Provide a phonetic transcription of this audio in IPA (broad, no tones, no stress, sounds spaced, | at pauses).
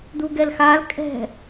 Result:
d̪ u ɡ ɛ l x a l kʼ ɛ̤